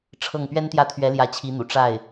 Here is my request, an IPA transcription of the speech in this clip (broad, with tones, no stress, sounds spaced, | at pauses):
ʈ͡ʂʰ ɤ˥˩ ŋ p ɥ ɛ˥ n t̪ j ä˥˩ t̪ʰ ɥ ɛ˧˥ l j ä˧˥ t͡ɕʰ i˧˥ n̪ ṵ˨˩ ʈ͡ʂ a˥˩ ɪ̯